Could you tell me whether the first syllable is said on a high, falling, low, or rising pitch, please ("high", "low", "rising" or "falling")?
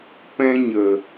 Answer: high